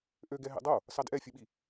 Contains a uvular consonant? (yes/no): no